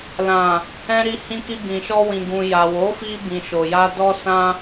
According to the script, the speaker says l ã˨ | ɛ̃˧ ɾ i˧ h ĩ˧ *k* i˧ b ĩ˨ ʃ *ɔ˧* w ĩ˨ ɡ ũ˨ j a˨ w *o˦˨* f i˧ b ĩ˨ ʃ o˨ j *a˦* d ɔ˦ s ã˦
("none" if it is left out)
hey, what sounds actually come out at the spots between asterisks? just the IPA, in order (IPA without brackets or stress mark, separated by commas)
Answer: k, ɔ˧, o˨˦, a˧